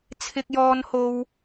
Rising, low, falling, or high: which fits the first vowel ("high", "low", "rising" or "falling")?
high